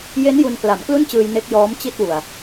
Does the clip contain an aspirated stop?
no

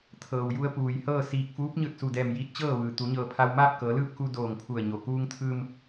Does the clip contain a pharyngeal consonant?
no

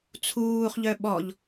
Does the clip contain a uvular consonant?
yes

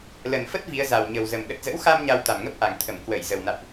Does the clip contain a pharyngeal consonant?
no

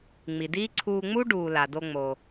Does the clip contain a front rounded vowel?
no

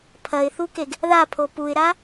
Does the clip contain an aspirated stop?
yes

